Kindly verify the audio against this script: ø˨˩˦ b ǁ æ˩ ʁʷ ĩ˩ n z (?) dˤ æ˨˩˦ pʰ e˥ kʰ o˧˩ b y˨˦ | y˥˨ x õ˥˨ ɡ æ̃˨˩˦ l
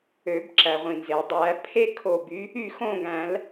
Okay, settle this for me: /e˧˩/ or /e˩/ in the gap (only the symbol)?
e˩